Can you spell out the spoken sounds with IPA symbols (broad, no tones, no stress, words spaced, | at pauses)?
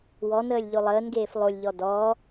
wɔnəːlʲ ʎolˠəːnɡeːf lˠolʲʎɔ dɔː